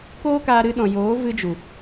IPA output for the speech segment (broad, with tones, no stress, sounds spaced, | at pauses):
k oː˦ k aː˧ ɾ ɨ˧ ɗ ɔ̃˨ j oː˨˦ v ɨ˧ d͡ʒ u˨